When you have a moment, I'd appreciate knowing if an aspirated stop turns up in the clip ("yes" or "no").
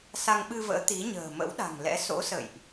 no